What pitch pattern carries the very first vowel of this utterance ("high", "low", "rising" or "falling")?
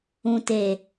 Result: low